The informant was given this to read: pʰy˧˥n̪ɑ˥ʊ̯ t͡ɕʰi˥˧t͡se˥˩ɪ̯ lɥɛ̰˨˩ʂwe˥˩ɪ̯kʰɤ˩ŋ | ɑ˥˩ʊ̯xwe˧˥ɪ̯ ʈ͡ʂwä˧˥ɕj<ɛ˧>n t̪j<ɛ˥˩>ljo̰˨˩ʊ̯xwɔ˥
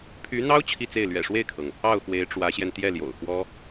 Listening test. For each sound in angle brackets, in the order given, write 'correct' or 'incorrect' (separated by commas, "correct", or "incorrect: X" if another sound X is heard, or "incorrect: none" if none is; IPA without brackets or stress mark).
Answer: correct, correct